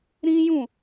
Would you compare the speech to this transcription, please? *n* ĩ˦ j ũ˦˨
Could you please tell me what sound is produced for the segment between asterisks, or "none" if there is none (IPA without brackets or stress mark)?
ɾ